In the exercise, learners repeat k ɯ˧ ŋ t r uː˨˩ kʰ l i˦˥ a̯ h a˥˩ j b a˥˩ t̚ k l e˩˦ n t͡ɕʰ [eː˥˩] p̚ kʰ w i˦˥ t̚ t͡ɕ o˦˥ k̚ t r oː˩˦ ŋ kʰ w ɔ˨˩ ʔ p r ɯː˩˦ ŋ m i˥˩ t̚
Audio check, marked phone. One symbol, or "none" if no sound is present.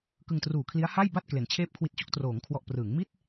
eː˥˩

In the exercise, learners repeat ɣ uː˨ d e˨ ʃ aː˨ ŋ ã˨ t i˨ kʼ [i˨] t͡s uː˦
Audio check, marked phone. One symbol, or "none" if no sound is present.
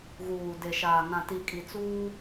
i˨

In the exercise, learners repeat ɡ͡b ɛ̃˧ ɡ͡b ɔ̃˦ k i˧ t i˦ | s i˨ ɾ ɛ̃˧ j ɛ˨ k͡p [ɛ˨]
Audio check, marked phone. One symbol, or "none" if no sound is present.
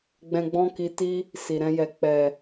ɛ˨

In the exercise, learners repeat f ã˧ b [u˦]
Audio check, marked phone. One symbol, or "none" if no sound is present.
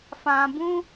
ũ˦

